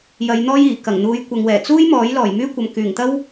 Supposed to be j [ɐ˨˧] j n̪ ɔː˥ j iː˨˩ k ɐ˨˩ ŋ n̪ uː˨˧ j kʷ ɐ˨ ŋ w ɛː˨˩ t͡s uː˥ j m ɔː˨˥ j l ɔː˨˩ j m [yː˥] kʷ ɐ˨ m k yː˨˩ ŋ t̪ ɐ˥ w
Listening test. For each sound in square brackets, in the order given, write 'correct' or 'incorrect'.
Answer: correct, correct

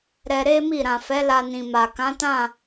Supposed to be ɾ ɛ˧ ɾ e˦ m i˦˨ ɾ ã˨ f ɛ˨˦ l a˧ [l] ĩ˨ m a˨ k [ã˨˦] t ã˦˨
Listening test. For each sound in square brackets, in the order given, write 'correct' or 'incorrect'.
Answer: incorrect: n, correct

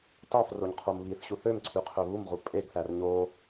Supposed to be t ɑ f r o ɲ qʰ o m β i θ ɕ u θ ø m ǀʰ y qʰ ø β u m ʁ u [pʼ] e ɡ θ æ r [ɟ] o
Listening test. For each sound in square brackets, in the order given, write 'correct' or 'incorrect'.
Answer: correct, incorrect: ɲ

